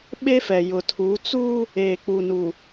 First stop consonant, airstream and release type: implosive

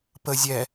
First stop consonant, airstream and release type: plain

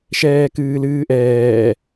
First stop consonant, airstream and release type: plain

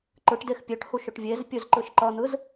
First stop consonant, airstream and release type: click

